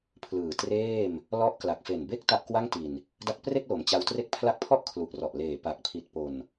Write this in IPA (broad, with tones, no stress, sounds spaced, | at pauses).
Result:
pʰ l ɯː˨˩ t r eː˥˩ m | l ɔ˦˥ ʔ k l a˨˩ k̚ f e˨˩ n b e˥˩ k̚ t a˥˩ ʔ k w a˥˩ ŋ t i˨˩ n | d a˦˥ k̚ p r e˥˩ k̚ l o˩˦ m t͡ɕ a˧ w t r e˦˥ k̚ pʰ l a˦˥ k̚ pʰ ɔ˥˩ ʔ kʰ l u˨˩ ʔ r ɔ˨˩ ʔ l eː˨˩ p a˨˩ k̚ pʰ i˨˩ t̚ p o˨˩ n